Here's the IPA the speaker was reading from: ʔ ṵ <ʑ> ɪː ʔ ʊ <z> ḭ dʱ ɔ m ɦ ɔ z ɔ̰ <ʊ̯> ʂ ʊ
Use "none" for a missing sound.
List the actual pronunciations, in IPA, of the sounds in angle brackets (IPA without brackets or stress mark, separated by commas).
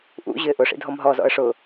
ʑ, ʂ, ə̯